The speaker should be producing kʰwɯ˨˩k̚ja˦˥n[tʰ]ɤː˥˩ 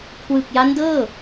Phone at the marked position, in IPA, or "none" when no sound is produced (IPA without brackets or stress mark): d